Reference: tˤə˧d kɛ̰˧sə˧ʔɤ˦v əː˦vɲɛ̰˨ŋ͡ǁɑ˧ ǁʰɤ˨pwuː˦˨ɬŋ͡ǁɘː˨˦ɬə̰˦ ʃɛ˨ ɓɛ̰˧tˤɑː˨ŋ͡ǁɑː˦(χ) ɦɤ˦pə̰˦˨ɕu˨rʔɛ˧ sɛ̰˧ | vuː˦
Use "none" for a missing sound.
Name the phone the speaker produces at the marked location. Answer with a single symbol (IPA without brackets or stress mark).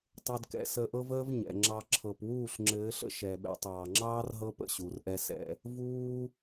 r